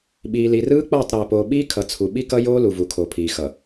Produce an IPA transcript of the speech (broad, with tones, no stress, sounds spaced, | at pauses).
ɓ iː˨ l i˨ r ɯː˦ k͡p ʌː˦˨ tˤ ɾ ɛː˨ p oː˨ ɓ iː˦ kʰ ʌ˨ t͡sʰ u˨ ɓ i˦ k ʌ˦ j oː˦ l u˨ v u˨ kʰ o˨ pʰ iː˨ x ʌ˨